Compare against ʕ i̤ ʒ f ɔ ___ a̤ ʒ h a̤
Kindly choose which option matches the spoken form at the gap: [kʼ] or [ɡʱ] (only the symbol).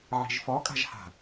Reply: kʼ